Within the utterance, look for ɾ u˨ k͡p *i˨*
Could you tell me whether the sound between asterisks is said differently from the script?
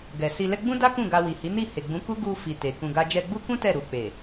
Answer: yes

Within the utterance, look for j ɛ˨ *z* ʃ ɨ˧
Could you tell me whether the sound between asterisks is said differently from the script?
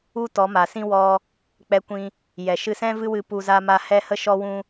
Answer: yes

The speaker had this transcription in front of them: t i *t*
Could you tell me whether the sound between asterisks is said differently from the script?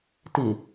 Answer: yes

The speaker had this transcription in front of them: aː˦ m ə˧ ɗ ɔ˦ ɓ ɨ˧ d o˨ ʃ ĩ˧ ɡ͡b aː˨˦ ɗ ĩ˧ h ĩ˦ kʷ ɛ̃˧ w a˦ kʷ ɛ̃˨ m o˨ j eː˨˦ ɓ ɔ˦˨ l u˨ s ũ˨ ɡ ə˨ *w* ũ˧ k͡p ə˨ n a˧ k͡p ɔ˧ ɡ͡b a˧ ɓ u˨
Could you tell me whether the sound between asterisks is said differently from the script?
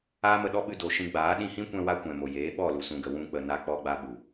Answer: no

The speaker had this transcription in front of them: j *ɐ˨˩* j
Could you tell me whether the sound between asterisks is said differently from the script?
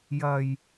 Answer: no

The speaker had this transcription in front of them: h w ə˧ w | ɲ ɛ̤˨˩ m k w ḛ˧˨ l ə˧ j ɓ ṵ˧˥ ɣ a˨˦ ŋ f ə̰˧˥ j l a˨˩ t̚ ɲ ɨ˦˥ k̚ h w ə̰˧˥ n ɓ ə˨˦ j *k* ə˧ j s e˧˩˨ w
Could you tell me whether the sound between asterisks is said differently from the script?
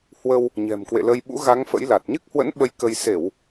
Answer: no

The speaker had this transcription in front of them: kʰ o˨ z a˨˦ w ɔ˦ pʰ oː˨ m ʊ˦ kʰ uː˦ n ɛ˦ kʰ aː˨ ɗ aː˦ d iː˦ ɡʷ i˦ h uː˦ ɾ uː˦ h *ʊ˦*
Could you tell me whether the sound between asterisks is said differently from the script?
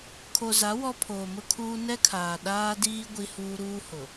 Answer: yes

